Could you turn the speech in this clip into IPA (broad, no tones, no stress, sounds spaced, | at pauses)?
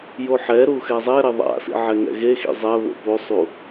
j o ħ ɛ ɾ u x ɛ zˤ ɛ ɾ e ðˤ a̰ s ḭ ʕ ɛ ŋ ɛ̰ ɣ e x ḭ zˤ ɛ β o̰ p o sˤ u